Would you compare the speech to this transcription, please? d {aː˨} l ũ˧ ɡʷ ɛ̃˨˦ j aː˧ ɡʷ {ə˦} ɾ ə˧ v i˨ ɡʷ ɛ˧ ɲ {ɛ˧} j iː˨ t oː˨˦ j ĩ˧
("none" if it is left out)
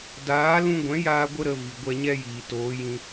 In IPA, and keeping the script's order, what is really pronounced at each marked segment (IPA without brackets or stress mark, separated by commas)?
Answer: aː˨˦, ə˦, ɛ˦